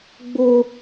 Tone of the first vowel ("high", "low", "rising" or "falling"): high